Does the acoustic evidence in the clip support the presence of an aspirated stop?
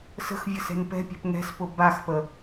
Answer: no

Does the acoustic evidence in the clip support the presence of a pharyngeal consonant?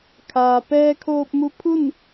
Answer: no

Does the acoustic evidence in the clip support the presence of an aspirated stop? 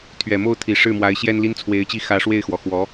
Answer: yes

